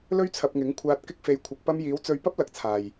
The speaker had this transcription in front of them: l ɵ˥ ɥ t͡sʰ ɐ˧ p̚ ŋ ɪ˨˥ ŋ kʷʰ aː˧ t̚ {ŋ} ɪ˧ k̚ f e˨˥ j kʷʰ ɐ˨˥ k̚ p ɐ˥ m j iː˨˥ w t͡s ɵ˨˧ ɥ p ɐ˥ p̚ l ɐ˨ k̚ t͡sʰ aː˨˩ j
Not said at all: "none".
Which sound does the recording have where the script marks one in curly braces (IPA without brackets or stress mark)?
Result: k